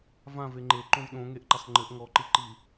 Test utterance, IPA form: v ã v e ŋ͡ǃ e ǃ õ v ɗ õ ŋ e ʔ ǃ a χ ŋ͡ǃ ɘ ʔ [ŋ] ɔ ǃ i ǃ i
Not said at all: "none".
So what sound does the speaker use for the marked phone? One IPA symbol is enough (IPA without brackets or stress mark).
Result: ŋ